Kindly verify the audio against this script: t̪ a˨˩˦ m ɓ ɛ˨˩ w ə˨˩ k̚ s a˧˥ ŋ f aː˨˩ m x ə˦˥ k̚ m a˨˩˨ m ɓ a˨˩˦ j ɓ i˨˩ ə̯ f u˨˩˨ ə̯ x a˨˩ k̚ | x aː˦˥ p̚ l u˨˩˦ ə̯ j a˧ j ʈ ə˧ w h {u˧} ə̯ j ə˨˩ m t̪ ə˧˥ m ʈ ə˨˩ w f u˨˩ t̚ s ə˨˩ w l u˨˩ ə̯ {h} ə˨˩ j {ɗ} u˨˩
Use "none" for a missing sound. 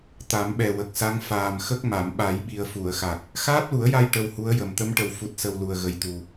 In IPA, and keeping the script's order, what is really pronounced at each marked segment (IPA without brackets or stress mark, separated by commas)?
u˧˥, ɣ, t̪